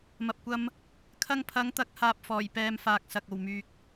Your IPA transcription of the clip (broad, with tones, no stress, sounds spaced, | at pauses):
m ɐ˨ p̚ kʷ ɐ˧ m | kʰ ɐ˧ ŋ pʰ ɐ˨˧ ŋ t̪ ɐ˨˥ k̚ h aː˧ p̚ f ɔː˨˩ j p ɛː˧ m f aː˨ k̚ s ɐ˨ k̚ o˨˩ w m yː˨ k̚